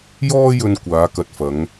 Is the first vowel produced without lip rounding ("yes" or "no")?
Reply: no